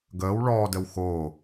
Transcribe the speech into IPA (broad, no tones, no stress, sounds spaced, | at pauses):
ɡ əː w ɭ ɔː d ə w x o